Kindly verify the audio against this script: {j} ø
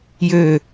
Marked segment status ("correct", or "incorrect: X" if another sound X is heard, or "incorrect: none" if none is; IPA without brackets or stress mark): correct